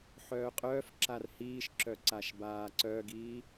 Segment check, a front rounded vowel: present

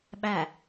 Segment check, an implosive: present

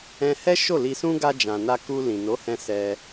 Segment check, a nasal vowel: present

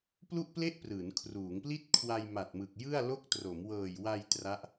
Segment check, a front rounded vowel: absent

